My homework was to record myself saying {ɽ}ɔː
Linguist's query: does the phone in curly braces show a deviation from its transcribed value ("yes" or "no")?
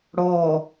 no